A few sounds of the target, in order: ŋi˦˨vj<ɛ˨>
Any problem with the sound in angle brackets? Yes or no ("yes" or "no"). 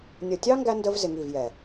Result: no